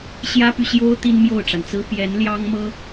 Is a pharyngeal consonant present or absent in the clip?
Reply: absent